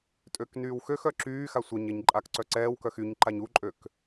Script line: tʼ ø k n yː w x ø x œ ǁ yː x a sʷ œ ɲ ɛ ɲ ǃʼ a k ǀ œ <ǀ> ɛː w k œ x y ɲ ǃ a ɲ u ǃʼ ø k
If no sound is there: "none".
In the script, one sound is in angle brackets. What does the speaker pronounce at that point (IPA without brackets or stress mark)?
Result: ǀ